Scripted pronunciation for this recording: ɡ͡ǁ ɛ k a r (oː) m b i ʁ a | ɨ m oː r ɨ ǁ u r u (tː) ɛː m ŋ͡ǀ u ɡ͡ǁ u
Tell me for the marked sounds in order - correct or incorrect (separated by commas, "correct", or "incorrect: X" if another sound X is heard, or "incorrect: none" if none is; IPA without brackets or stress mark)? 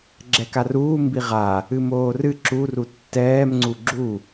incorrect: uː, correct